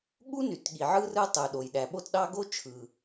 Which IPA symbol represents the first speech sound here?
ɠ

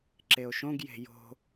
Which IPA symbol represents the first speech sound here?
ǁ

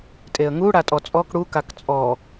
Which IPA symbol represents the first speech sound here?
tʼ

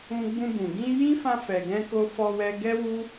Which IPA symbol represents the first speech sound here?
ũ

